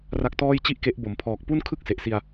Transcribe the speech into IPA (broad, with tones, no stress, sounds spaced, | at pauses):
r a˦˥ k̚ t ɔː˥˩ j t͡ɕ i˥˩ ʔ k e˦˥ ʔ b o˩˦ m pʰ ɔː˨˩ k̚ p u˥˩ n kʰ ɯ˥˩ k̚ s e˨˩ ʔ s i˧ a̯